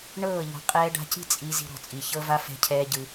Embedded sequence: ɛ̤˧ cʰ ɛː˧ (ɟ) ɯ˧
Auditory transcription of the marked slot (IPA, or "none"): ɟ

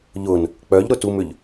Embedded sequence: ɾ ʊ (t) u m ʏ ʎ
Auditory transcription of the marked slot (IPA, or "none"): t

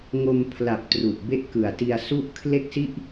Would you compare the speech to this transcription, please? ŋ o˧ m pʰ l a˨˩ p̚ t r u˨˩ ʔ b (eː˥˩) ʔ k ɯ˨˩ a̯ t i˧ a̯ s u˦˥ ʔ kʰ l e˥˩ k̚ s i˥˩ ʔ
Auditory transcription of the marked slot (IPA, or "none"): e˥˩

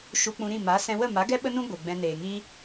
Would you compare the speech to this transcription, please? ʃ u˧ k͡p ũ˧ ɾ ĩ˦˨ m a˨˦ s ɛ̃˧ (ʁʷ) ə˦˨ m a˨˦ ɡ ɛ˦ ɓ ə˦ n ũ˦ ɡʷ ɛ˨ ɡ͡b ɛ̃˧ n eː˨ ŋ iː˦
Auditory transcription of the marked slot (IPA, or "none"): w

